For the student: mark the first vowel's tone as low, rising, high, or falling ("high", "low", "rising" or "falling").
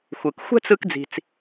low